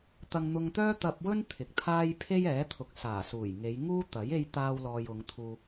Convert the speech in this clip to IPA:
t̪ ɐ˧ ŋ n̪ ʊ˧ ŋ t̪ œː˥ t̪ ɐ˧ p̚ w ɵ˥ n t̪ʰ ɪ˨ k̚ t̪ʰ aː˥ j pʰ e˥ j ɛː˨˥ t̪ʰ ʊ˨ k̚ s aː˨˩ s uː˨˩ j ŋ e˨˧ j ŋ uː˥ t̪ ɐ˨˥ j e˥ j t̪ aː˥ w l ɔː˧ j ʊ˨˧ ŋ t̪ʰ uː˧

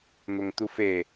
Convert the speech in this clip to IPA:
n̪ o ŋ t̪ u f e

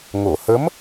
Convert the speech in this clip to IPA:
ŋ o˨˩˨ h ə˧˥ m

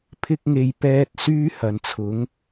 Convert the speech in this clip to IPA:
pʰ ɪ˥ k̚ ŋ e˧ j p ɛː˥ t̚ s yː˥ h ɐ˨ n t͡sʰ ʊ˨˥ ŋ

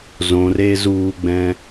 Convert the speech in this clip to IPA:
z õ r e z uː ɡ͡b ɛ̃

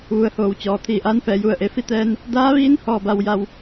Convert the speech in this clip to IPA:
ʋ u˩ ə̯ h oː˩ w t͡ɕ ɔː˩ t̪ʰ iː˧˩ ʔ aː˧˥ n f ɛː˩˧ j u˧˩ ə̯ ʔ e˩˧ f i˥˨ t̪ ɛː˧ n | d aː˧˥ ʋ iː˧˥ n h ɔː˥˨ b a˧ w j a˧ w

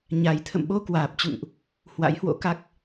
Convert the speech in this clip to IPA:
ɲ a˧ j t̪ʰ ə̰˧˨ m ɓ o˧ k w aː˨˩ p̚ t͡ɕ ṵ˧˨ ŋ ʔ | h w a̰˧˥ j h w o̰˧˥ k a˦˥ k̚

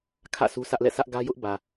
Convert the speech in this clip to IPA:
kʰ ä̰˦˨ sʰ u˦ s ä˦ ʔ l ɛ̰˦˨ sʰ ä˦ ʔ ɡ ä˦ j ʊ˦ ʔ b ä˨

